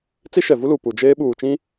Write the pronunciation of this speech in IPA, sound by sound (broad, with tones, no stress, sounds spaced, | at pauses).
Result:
t͡s i˦ ʃ ɛ˨ v u˦ l u˨ p u˨ d͡ʒ eː˦ ɓ uː˨ t͡ʃ ĩ˦